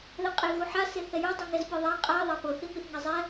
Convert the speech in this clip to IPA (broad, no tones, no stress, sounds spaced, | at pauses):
ð ɛ qʼ e ɣ u ħ a s e θ ɛ j ɤ dˤ i ŋ ɛ z pʲ ɤ ðˤ a qʼ a ðˤ a p ɤ θ i m i θ ŋ ɛ zˤ ɛ